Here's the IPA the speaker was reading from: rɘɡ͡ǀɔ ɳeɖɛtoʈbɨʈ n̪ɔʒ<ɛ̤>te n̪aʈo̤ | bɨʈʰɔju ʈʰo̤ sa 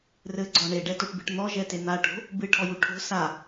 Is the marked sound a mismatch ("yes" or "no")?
yes